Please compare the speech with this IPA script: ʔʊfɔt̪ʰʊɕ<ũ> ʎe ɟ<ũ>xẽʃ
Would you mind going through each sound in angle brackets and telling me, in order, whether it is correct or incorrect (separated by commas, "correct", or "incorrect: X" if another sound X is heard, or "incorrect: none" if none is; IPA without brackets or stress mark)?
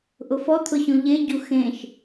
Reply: correct, incorrect: u